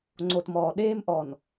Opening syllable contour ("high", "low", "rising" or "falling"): low